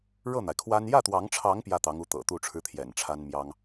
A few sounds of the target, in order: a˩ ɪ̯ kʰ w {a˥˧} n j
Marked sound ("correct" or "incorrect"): incorrect